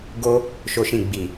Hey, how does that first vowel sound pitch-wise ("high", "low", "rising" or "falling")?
high